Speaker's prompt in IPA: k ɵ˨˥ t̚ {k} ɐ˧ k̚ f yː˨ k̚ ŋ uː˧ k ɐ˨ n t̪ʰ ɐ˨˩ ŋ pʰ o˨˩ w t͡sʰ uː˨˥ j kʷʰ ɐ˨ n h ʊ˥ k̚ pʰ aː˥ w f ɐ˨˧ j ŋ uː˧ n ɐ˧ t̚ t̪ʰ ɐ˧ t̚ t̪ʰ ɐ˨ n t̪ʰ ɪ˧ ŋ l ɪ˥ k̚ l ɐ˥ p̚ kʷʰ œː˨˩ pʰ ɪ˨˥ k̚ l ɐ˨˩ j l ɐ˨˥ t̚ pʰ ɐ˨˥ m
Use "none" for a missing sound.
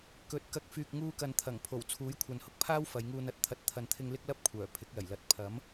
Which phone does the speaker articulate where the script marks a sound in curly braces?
k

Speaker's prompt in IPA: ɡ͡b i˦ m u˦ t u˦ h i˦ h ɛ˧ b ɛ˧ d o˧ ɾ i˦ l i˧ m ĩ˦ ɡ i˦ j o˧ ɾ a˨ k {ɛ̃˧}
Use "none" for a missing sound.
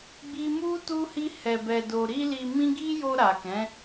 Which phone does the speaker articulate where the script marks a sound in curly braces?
ɛ̃˨˦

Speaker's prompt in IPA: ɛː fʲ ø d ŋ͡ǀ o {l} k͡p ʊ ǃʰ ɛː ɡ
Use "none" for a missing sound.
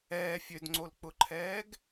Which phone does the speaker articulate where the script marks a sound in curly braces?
l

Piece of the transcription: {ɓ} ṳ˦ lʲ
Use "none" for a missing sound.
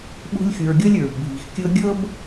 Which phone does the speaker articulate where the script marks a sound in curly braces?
ɓ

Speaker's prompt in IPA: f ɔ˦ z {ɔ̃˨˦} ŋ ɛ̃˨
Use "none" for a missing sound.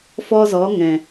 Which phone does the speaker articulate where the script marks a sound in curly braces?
ɔ˨˦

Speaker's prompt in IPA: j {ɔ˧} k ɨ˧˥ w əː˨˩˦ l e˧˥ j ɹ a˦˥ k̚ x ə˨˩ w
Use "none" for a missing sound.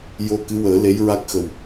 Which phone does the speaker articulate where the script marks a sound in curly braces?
o˧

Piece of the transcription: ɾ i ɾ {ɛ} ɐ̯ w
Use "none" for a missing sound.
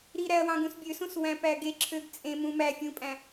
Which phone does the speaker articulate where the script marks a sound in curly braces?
æ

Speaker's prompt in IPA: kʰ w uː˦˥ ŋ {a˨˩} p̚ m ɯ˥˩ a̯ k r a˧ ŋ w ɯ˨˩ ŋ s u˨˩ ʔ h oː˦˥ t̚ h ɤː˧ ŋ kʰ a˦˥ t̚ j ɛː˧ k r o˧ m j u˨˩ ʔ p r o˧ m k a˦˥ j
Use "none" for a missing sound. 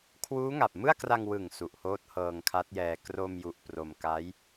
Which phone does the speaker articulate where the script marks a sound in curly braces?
a˨˩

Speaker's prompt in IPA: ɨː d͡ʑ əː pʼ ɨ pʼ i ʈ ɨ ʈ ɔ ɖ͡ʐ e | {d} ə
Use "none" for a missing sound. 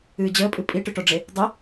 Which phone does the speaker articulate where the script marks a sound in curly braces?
dˤ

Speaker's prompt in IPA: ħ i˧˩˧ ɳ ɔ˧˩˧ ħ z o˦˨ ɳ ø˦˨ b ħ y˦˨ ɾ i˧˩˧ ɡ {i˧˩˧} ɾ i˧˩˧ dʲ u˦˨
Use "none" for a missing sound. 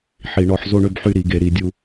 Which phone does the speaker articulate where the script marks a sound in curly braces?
e˧˩˧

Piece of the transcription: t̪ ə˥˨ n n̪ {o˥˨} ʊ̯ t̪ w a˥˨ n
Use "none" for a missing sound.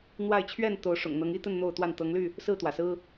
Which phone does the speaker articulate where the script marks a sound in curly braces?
o˥˨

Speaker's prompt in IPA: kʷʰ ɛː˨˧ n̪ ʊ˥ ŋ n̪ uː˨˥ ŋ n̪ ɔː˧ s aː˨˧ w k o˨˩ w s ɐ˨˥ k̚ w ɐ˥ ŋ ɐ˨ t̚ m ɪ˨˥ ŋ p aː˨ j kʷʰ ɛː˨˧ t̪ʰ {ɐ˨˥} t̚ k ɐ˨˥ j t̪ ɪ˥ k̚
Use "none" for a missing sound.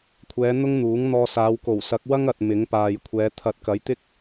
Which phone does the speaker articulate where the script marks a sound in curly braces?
ɐ˨˥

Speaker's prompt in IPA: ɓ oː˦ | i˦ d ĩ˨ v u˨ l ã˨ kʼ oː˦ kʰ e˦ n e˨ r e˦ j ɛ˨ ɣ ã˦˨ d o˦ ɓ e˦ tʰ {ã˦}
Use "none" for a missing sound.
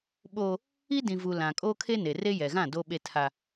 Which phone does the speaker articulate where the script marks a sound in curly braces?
a˦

